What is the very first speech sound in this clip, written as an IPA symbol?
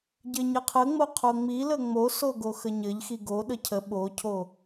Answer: ɟ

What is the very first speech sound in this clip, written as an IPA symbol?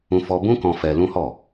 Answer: ũ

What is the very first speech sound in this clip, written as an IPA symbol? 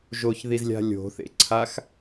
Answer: ʒ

